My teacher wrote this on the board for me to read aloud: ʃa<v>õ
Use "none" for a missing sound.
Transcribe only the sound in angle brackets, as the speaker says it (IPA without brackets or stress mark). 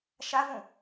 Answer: v